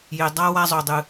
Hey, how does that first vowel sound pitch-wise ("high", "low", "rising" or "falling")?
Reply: low